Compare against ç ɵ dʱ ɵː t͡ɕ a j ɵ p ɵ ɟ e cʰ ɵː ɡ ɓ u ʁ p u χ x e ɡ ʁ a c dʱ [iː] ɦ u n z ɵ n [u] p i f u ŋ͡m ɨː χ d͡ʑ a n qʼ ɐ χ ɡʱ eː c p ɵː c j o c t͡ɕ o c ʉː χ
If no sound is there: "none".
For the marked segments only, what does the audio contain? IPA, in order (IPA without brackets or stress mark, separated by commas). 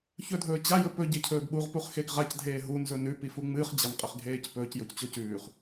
eː, ʉ